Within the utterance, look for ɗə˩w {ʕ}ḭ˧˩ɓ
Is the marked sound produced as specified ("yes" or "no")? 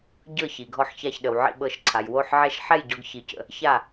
yes